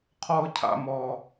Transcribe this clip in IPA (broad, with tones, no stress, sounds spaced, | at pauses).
qʰ ɔ˦ ʊ̯ cʰ a̰˦ m ɔ˦